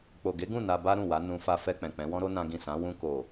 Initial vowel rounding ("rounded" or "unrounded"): rounded